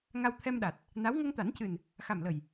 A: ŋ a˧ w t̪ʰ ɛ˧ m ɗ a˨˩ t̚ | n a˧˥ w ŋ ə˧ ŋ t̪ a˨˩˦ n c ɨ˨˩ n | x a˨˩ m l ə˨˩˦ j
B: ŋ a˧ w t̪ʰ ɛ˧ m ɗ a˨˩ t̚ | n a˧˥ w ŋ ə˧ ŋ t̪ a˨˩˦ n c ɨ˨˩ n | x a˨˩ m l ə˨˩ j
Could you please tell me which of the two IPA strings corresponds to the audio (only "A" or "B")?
B